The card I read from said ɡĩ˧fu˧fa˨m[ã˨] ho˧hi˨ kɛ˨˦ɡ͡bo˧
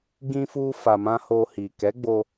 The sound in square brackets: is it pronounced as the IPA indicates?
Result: no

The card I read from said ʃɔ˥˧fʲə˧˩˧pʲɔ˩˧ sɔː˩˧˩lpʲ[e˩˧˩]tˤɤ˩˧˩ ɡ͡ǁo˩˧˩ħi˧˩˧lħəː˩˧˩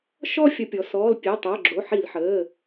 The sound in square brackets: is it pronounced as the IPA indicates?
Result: yes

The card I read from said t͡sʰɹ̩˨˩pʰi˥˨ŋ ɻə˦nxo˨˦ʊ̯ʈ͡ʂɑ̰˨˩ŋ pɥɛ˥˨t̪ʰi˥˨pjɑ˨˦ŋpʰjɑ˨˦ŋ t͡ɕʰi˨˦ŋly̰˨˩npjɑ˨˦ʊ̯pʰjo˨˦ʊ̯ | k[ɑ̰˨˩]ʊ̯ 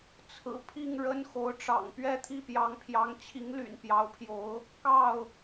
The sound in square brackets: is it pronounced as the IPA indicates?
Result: no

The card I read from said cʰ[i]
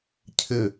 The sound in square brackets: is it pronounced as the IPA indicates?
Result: no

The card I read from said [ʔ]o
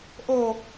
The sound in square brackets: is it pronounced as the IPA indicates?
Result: yes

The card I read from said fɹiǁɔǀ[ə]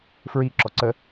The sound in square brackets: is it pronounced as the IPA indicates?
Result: yes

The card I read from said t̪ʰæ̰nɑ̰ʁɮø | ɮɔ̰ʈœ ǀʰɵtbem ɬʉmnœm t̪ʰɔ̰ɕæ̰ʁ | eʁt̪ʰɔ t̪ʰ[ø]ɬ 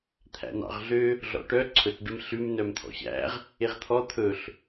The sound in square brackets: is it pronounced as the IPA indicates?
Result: no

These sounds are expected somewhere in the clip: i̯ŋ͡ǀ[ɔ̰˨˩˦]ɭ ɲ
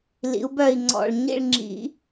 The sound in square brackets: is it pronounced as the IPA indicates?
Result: no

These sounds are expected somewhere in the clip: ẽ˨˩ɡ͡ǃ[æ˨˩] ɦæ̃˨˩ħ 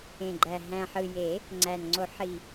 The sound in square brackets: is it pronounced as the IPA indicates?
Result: yes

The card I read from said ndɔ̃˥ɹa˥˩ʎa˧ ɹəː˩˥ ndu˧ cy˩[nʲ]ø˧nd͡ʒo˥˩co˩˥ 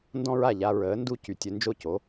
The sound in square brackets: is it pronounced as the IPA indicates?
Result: no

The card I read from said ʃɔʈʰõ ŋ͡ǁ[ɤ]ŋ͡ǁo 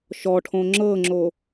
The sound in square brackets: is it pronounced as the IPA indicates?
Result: yes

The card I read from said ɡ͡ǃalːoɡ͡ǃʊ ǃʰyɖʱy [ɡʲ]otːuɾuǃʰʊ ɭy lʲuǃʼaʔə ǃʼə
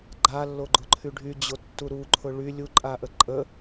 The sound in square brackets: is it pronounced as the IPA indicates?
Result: no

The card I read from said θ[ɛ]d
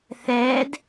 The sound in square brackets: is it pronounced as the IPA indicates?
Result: no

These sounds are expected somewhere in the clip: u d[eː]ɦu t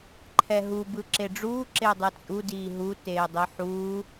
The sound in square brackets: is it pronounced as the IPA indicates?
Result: no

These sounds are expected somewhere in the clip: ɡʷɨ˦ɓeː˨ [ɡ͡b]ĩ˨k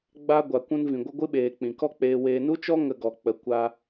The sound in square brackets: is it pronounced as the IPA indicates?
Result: no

